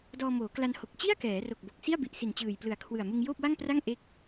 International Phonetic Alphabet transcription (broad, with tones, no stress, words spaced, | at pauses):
dɔː˧moː˩˦kla˧nho˨˩k̚ t͡ɕi˥˩a̯ kɛː˩˦ro˨˩k̚ bo˨˩k̚si˥˩a̯bi˨˩ʔsi˨˩n t͡ɕɯː˨˩jplɯ˨˩a̯kʰwɯ˨˩a̯ mɯ˧ŋjoː˥˩p̚wa˥˩ŋpra˥˩ŋ ʔe˦˥k̚